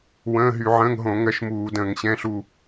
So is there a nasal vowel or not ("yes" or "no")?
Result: yes